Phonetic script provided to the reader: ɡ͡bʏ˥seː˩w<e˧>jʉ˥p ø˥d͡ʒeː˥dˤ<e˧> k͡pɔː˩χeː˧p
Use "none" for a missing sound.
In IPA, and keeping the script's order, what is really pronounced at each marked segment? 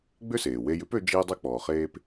e˧, e˥

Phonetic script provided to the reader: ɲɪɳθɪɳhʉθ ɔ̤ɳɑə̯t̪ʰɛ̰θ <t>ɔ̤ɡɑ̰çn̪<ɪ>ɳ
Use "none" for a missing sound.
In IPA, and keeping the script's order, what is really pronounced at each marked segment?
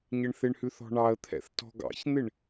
t, ɪ

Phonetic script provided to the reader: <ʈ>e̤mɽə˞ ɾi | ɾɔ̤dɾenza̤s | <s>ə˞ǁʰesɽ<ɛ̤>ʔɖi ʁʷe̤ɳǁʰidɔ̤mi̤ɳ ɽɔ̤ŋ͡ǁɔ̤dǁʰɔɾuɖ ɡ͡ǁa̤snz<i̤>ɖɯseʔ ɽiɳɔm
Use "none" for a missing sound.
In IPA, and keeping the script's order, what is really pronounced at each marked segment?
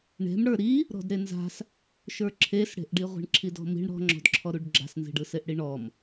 ɳ, ʃ, e̤, i̤

